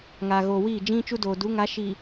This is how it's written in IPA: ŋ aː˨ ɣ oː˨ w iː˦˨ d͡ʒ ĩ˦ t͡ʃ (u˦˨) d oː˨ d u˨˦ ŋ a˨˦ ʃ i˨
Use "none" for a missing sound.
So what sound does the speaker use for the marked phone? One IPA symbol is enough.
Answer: u˦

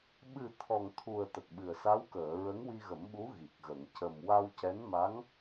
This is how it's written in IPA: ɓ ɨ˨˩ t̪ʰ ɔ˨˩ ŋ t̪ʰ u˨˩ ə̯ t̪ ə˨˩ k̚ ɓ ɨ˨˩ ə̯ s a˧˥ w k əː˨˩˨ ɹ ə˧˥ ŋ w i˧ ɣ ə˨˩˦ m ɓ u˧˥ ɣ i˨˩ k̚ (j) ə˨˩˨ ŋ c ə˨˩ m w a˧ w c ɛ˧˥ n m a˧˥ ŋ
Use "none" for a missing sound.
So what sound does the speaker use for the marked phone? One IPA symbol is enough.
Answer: ɣ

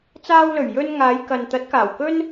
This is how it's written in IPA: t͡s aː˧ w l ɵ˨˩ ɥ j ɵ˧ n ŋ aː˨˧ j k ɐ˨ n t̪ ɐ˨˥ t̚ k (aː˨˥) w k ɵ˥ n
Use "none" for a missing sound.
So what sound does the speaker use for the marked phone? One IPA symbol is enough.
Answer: aː˨˩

